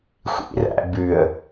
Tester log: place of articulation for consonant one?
velar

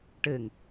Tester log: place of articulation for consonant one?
retroflex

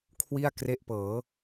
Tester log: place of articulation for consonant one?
velar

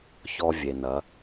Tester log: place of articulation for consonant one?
palatal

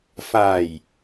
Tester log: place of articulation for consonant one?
labial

